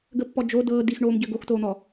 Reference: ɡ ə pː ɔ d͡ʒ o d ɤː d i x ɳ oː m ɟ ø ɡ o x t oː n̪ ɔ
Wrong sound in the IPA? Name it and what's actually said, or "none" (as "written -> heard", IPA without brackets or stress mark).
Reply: none